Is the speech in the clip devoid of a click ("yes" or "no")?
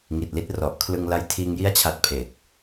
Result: yes